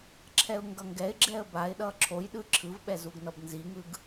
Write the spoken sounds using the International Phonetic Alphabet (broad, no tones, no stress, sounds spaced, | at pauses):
ǁʰ ɛ ʊ̯ ŋ ɡ ʌ ŋ ɡ ɛ ɪ̯ ɡ͡ǁ ɛ ə̯ b a ɪ̯ ɗ ʌ ǁʰ o j ɗ ɯ ǁʰ ɯ v ɓ ɛ z u ɡ n ʌ b n z i ŋ ɯ ɡ